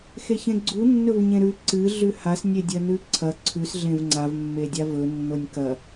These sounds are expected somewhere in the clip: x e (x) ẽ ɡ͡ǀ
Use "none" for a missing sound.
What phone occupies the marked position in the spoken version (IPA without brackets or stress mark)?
ç